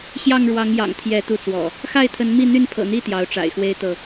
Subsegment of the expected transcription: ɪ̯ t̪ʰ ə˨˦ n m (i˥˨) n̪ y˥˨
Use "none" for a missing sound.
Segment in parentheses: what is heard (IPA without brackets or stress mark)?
i˥˨